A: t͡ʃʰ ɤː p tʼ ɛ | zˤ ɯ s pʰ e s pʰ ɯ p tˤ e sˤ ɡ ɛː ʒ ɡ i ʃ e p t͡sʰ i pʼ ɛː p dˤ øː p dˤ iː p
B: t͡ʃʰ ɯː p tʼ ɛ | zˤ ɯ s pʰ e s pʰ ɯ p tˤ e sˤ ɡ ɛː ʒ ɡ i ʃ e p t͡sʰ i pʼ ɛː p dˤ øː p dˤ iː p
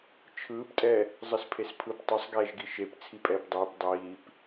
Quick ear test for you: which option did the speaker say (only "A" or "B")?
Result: B